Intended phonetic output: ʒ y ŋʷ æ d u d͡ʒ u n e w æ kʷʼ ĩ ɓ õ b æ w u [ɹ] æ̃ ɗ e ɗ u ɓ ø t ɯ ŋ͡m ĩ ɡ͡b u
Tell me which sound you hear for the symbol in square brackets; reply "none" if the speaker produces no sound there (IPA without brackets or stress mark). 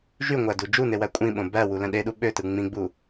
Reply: l